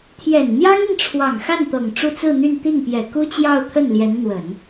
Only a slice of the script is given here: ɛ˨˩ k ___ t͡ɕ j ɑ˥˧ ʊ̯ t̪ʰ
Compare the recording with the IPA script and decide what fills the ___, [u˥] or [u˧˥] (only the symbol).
u˥